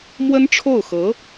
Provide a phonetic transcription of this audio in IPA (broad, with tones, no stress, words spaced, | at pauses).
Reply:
mwə˥nʈ͡ʂʰo˥˩ʊ̯xɤ˧˥